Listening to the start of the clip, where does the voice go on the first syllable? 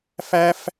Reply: high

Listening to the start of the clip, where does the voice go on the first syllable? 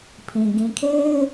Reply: low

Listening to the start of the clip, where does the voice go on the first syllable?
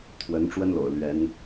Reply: rising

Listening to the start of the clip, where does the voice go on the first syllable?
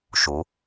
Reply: rising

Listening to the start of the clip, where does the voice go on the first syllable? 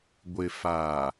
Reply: low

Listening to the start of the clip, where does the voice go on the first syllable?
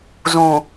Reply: low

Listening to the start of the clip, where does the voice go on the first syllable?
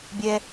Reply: low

